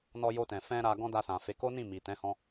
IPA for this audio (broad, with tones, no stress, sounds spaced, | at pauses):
n ɔ˧ j o˧ t ɛ̃˨ f ɛ̃˧ ɾ a˧ ɡ ɔ̃˦ d a˧ s ã˨ f e˨˦ k o˦ n ĩ˦˨ m i˨ t ɛ̃˨˦ h ɔ̃˧